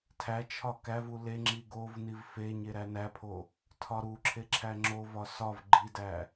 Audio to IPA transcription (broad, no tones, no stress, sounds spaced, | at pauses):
tʰ æ t͡ʃʰ ɒ k æ v u l e ŋ͡ǁ i ɡ o v n i v f e ɲ e ɾ æ n æ pʰ o | tʰ ɒ ɾ u ǁʰ e ǁʰ æ ŋ͡ǁ o v ɒ s ɒ v ɡ͡ǃ i d æ